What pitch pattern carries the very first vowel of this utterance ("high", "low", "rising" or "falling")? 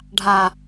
low